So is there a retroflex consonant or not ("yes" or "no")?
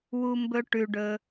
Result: yes